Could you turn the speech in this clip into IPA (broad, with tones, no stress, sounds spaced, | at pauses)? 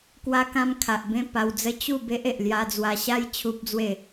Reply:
k w a˧ k ã˧ m kʰ a˨ ʔ b ẽ˥˧ p a˧ w d͡z ə˦ t͡ɕ u˥˧ b e˦ ʔ e˨ ʔ l j a˧ d͡z w a˧ ɕ a˦ j t͡ɕʰ u˦ p̚ d͡z w e˥˧